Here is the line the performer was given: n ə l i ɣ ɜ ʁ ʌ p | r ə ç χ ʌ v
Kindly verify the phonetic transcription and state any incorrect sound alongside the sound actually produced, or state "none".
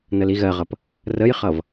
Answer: ç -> j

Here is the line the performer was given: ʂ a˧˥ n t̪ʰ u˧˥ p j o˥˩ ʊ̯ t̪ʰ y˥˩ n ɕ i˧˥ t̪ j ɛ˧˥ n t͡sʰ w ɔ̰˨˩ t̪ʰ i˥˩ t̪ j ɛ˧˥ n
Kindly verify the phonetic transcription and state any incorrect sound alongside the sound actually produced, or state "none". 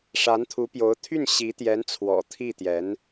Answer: o˥˩ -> o˧˥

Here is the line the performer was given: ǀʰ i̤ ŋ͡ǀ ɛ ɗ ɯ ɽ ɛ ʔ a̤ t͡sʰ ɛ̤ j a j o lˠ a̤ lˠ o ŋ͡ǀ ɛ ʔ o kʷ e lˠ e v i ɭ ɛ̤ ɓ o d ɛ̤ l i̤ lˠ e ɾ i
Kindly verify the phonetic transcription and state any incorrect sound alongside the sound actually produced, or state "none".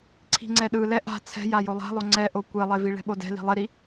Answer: ɽ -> l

